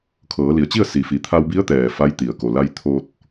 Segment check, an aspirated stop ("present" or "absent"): present